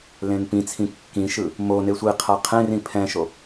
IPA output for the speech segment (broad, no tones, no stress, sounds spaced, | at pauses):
l ẽ n p ĩ t͡sʰ ĩ kː ĩ ʃ ɯ | m o n e sʷ i qʰ a qʰ ẽ r ĩ pʰ ɛ̃ ʃ o